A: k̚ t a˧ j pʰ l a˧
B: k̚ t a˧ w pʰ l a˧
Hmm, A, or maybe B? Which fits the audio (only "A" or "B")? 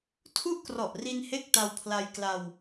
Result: B